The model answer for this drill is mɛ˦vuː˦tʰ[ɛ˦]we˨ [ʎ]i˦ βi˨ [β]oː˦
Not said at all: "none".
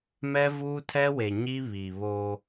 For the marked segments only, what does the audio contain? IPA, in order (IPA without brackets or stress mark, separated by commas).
ɛ˦, ɲ, β